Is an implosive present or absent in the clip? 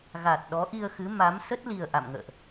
present